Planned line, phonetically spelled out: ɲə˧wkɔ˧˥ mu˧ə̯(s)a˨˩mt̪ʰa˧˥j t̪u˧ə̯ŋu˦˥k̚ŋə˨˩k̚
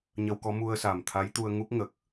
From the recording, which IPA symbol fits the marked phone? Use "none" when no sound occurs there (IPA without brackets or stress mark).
s